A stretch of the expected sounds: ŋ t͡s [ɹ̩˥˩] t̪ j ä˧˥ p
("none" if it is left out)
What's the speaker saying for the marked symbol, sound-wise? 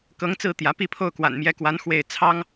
ɹ̩˥˩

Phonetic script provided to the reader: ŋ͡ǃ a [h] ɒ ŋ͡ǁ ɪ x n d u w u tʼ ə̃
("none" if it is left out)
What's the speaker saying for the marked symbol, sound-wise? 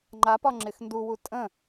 p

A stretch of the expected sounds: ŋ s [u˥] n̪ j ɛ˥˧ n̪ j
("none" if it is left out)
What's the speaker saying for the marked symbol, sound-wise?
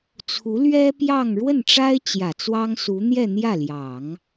u˧˥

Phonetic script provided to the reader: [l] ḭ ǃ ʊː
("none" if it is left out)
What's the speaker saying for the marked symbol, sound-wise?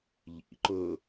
ʎ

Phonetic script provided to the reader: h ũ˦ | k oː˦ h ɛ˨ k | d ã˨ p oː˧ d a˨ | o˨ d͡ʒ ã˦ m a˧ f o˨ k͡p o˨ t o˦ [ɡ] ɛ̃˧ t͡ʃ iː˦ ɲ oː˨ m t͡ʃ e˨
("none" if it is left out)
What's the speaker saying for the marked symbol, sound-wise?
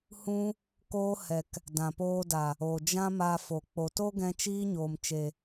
ɡ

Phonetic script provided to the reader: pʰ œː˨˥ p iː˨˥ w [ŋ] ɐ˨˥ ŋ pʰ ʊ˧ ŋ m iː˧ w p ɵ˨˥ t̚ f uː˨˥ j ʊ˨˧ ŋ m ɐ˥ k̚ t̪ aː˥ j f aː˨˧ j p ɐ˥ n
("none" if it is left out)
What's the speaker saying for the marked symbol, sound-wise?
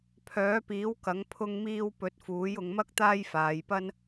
k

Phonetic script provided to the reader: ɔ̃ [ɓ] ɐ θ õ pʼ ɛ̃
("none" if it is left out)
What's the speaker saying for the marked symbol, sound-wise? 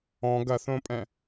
ɡ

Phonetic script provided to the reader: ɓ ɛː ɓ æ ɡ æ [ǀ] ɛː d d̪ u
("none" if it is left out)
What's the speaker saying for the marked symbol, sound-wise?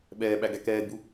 k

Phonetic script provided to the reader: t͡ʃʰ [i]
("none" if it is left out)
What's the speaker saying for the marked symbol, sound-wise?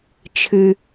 ɨ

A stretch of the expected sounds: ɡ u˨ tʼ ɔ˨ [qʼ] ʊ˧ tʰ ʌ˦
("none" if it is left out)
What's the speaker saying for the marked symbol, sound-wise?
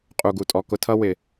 k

